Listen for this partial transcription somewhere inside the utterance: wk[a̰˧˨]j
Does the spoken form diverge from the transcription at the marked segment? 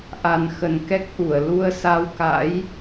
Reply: yes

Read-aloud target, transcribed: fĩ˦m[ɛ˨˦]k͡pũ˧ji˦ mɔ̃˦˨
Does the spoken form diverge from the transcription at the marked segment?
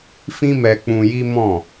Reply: yes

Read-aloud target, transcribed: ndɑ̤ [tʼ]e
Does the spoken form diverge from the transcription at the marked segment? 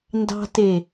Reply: yes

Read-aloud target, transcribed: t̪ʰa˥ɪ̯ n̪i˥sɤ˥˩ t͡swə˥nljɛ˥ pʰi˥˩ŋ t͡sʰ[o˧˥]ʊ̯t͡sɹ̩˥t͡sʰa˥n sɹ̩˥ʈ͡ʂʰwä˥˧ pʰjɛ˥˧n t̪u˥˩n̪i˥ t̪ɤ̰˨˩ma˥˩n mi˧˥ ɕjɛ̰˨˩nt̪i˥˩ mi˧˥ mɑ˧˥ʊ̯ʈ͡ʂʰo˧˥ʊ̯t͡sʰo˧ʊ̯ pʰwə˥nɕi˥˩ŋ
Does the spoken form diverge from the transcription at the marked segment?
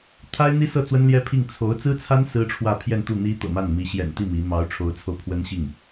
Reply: no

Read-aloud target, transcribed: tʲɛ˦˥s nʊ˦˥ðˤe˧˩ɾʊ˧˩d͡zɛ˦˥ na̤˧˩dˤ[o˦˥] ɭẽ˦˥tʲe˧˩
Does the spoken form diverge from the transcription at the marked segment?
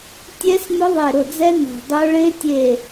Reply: no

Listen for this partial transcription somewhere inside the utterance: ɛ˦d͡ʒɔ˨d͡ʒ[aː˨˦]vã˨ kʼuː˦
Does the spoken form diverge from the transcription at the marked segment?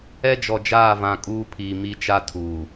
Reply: yes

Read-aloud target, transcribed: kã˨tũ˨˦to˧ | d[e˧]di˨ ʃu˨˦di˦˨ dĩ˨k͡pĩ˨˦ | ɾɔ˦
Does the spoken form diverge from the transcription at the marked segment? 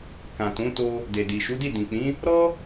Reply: yes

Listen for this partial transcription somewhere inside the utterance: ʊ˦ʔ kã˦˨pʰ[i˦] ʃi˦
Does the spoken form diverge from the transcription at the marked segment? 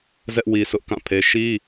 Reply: yes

